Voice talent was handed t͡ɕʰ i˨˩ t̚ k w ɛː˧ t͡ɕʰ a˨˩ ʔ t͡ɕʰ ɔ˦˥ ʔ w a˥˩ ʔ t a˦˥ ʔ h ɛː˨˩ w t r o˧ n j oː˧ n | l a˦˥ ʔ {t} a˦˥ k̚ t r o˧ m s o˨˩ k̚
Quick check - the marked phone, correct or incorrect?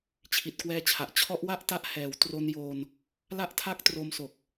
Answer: incorrect: tʰ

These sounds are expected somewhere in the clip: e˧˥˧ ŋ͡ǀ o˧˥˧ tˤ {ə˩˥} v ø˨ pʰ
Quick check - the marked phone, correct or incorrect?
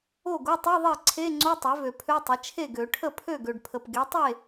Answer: incorrect: ø˩˥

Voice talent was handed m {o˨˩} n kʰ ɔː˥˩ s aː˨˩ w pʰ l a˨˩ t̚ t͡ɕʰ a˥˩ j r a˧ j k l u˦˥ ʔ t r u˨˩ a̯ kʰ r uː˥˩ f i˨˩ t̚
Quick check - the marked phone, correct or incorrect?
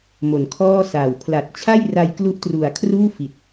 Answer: correct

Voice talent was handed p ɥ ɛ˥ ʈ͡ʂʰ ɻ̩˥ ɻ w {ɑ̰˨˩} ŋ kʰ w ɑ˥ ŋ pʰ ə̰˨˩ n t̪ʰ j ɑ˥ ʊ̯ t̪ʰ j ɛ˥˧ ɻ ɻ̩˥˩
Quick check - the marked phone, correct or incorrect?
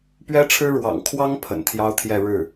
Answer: correct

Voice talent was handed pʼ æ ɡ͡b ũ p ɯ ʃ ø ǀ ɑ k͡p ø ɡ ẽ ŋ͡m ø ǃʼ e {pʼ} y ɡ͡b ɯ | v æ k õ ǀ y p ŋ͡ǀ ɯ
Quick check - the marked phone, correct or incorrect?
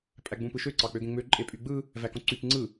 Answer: correct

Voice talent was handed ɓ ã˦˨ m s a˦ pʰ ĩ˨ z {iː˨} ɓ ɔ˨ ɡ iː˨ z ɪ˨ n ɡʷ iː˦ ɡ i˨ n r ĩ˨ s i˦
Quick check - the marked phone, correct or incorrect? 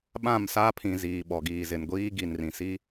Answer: correct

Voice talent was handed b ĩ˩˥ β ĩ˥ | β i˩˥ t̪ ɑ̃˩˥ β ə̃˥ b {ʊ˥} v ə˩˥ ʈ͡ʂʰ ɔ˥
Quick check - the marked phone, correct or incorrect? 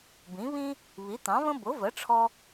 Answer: incorrect: ʊ˩˥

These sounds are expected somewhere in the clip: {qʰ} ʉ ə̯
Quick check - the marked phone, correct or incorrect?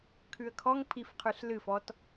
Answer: incorrect: kʰ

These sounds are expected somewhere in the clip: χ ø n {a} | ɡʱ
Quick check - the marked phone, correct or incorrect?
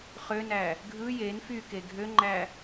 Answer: incorrect: æ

